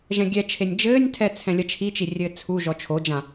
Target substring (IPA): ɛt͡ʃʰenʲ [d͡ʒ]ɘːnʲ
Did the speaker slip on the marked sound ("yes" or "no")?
no